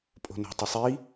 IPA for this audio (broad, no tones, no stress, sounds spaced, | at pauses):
pʼ o̤ n o̤ tˤ i sˤ i